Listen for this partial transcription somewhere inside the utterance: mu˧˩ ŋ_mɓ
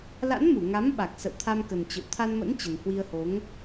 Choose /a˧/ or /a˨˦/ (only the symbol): a˨˦